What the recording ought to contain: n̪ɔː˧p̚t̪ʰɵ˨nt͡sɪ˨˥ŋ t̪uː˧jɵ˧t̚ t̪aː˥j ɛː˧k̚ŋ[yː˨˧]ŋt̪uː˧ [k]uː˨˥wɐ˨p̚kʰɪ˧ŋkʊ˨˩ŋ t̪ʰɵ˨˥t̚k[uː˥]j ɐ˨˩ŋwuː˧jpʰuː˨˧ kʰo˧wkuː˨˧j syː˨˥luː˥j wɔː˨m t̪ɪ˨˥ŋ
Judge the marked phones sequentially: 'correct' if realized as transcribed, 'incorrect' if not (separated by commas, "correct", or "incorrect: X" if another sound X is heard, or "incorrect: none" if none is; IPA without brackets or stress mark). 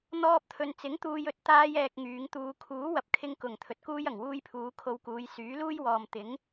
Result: correct, incorrect: kʰ, correct